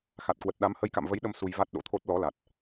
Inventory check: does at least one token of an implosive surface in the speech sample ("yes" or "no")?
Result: yes